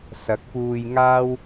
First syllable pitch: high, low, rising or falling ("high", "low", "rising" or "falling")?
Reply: rising